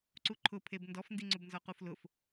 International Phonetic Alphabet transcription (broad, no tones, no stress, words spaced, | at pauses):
ǀuǃʰʊpʰeb ndɔfndiŋ͡ǀʊbnzɔ quflʊf